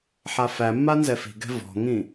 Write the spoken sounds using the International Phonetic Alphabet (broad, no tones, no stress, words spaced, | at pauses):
ħafæmːa nzɛfi̤ɡɛ̤ vɔ̤ŋĩ